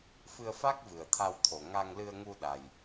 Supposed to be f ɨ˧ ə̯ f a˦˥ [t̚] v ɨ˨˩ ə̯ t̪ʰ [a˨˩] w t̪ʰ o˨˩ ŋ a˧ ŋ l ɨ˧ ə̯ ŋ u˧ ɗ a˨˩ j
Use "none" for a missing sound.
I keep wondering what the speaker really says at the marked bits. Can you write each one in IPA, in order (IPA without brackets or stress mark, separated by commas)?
k̚, a˧